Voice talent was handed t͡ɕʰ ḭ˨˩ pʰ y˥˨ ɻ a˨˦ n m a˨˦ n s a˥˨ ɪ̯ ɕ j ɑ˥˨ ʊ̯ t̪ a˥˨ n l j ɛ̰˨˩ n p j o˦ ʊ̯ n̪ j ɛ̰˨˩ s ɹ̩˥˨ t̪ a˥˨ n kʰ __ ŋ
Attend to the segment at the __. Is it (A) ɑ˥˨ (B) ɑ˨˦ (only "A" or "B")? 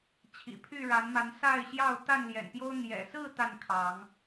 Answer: B